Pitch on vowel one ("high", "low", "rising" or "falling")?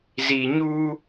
low